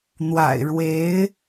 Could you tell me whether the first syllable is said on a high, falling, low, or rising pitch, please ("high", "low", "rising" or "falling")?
low